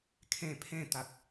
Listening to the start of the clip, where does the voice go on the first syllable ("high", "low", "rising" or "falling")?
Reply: falling